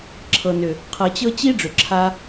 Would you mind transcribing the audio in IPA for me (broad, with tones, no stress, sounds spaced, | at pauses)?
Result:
ǁʰ ɤ˨ n ʏ˨ | qʰ ɤ˨ t͡ɕ ɤ˦ t͡ɕ i˦ ɖ͡ʐ ʏ˨ ǁʰ a˦